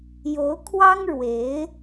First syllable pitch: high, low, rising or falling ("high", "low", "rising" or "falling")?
rising